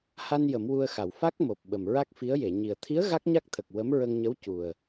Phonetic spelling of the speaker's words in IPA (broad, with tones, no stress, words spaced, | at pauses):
ha˧n jə˨˩˦mwu˧ə̯xa˨˩˨w fa˦˥k̚mo˨˩p̚ ɓə˨˩mɹa˦˥k̚fi˧˥ə̯je˨˩˨ ɲi˨˩ə̯ t̪ʰi˧˥ə̯ ɣa˦˥k̚ɲa˦˥k̚t̪ʰə˨˩k̚ wə˧˥mɹə˧ŋɲə˧˥w cu˨˩ə̯